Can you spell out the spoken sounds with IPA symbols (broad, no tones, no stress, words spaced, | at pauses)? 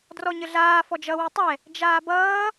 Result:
drɔɲəɮaː fɔd͡ʒʌ wɨtˤɛ | d͡ʒaːbʌː